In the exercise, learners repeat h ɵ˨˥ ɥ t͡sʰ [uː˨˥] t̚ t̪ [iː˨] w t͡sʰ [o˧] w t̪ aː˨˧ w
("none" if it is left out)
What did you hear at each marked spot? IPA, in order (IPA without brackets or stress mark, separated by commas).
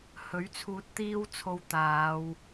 uː˧, iː˥, o˧